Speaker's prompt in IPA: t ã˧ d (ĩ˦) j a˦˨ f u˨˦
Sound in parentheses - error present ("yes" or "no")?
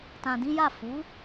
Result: no